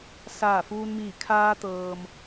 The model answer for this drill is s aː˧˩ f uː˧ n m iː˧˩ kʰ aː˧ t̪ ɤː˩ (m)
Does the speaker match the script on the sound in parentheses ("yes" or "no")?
yes